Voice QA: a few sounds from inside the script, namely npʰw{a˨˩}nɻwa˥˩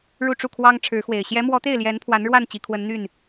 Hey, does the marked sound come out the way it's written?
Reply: no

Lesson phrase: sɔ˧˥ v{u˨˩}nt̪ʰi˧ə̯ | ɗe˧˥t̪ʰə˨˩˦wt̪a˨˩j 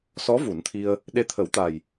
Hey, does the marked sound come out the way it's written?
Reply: no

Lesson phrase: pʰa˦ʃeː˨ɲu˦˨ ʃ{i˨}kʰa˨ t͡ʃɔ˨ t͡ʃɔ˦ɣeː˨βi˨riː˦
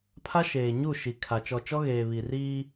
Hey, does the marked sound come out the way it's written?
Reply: yes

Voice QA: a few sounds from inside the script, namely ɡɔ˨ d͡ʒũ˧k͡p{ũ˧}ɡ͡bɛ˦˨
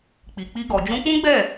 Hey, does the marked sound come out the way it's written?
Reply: no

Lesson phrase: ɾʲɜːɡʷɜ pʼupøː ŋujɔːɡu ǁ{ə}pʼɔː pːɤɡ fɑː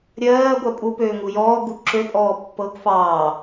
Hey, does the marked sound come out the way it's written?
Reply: no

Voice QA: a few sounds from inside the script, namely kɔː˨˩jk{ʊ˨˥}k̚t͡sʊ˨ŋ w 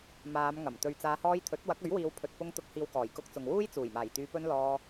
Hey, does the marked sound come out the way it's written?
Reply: no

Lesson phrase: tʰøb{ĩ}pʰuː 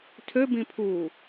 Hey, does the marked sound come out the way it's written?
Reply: yes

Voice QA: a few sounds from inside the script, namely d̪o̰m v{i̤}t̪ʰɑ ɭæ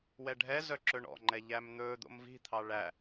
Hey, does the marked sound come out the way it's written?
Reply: yes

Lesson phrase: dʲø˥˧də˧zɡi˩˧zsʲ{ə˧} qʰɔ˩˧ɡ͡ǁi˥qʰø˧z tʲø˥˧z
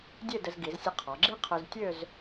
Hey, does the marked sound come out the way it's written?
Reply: yes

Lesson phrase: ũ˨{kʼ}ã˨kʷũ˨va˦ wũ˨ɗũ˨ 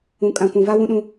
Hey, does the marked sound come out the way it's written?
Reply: yes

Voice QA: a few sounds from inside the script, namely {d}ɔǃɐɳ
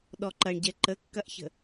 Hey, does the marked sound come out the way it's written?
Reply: no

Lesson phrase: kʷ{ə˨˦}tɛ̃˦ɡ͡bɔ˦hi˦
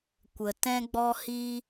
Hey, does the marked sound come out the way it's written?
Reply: no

